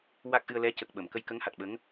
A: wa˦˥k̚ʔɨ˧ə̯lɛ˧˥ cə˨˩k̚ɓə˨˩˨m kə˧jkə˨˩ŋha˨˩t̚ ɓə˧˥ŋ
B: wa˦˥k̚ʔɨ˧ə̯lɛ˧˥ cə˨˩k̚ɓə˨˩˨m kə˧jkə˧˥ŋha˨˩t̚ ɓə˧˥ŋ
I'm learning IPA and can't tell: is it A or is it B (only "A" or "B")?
B